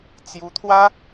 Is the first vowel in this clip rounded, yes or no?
yes